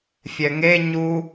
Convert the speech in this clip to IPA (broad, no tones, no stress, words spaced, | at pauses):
fʲɛŋe ɲu